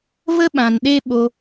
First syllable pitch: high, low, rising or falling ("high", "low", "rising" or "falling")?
high